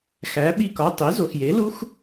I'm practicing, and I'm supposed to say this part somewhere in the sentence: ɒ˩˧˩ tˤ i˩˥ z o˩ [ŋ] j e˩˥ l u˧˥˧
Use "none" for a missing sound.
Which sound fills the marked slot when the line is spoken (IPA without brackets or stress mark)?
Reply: x